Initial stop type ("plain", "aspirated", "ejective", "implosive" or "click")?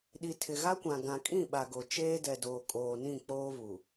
implosive